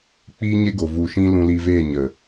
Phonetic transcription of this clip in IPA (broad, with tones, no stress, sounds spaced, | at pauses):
k͡p iː˦ ɲ e˦ ɡ o˨ v u˨ ʃ ĩ˦ l ũ˧ l i˧ v eː˦˨ ɲ ə˨